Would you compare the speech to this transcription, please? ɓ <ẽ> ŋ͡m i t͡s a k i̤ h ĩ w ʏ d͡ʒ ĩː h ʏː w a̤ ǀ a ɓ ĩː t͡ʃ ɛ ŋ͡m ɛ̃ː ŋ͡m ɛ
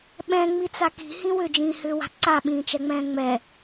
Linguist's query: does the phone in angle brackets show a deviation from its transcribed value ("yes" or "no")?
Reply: yes